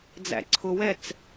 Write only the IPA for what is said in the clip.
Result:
d͡zæ̰ǀʰʊwɛt͡s

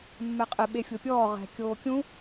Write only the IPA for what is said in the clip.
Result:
mːɛqʼɪ ɓefʲopʲɔː ʁɛ̤ kʲoːkʲũ

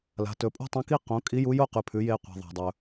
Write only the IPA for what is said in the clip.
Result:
la̤˩˧tɵ˩˧pʼṳ˥ tˤɐ̃˧˥ki˥ qõ˩˧ kʼi˧˥ju˧˥jo˥ qʉ˩pʰʉ˩˧jeː˧ qʷa̤˩ðˤa̤˩dˤɵ˩

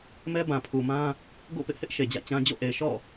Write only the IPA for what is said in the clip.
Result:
mɛ˦bã˨pʰu˨mã˦ | ɡo̰˦˨pɪ˦ʔhɪ˦ʔ ʃe˨d͡ʑä̰˦˨t͡ɕã˦ d͡ʑo̰˦˨ʔe˨ɪ̯ ʃɔ̰˦˨

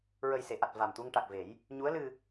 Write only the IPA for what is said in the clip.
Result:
ɹə˨˩jse˨˩˨ʔa˨˩t̚ va˨˩mt̪u˧ŋ ʈa˨˩k̚ve˨˩˦j | ɲu˧˥ə̯ lɨ˧

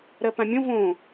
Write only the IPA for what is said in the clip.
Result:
ɾɜpãmʲõ võ

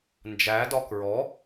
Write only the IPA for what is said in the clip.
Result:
nd͡ʒædɒ kɹɔ

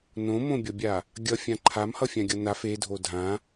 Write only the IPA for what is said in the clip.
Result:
nõmõbʲʌbʲa | ɡʲʌfʲã ǃʰamhʌfʲãɡʲʌ naf edʱo dʱã

